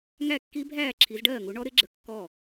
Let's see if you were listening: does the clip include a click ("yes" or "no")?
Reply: yes